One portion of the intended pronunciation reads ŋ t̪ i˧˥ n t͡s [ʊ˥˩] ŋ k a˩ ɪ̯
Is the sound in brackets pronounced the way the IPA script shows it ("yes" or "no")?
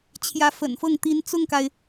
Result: yes